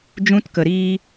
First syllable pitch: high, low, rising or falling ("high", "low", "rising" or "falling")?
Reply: high